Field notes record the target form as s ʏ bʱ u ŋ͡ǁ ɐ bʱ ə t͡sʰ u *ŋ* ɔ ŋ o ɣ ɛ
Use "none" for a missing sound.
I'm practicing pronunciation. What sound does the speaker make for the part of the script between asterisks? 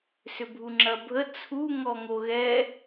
ŋ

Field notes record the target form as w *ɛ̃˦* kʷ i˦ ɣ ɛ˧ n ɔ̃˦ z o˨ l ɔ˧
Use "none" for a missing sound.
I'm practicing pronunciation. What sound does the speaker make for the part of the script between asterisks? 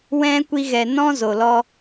ɛ̃˦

